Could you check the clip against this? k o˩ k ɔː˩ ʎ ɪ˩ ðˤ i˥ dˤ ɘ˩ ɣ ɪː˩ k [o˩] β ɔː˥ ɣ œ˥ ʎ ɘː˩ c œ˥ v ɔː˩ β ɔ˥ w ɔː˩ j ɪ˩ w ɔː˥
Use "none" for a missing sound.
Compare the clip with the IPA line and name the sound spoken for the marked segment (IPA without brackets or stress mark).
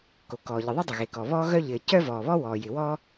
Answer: ɔ˩